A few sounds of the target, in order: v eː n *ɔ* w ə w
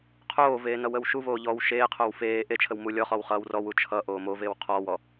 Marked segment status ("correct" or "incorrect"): incorrect